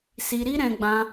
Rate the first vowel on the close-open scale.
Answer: close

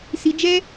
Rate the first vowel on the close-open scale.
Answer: close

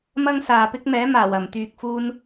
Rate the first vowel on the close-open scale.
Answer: open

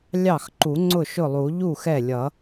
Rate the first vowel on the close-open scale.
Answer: open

